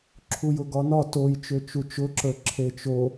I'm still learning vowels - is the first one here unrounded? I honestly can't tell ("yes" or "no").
no